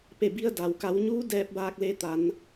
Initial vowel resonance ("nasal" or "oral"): oral